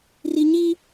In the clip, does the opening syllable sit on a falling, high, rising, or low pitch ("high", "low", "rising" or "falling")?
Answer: high